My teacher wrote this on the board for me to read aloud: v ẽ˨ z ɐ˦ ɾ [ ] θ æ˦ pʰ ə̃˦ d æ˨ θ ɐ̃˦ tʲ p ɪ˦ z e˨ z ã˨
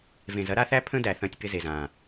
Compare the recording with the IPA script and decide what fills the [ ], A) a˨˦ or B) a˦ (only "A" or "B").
B